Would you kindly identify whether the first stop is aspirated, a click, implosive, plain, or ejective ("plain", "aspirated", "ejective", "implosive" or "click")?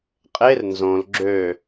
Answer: ejective